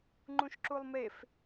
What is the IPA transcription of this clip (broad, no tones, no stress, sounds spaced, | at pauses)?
ŋ͡ǃ ũ ʃ ǁ u lˠ m e f